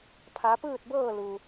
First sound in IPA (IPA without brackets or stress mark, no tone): pʰ